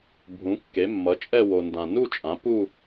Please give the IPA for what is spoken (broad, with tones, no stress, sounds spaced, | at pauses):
bʱ ũ˩˥ kː e˩˥ mː ʌ˩˥ t͡ʃʼ ɛ˥˧ w o˨ n d ã˨ n u˥˧ t͡ʃʼ ã˩˥ p u˥˧